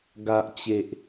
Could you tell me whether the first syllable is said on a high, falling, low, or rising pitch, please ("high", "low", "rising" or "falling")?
low